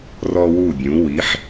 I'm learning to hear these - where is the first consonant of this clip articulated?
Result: tongue tip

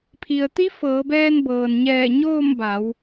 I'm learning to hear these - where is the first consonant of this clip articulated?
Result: lips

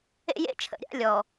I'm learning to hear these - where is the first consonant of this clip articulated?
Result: palate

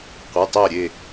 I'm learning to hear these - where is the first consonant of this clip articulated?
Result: uvula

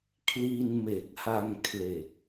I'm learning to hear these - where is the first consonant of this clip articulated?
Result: velum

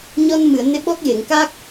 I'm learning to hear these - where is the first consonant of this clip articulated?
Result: palate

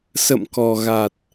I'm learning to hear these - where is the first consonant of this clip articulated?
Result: tongue tip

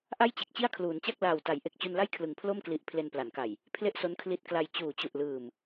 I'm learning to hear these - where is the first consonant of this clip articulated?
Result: throat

